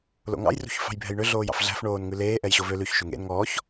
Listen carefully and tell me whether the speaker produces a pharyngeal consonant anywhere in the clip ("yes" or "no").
no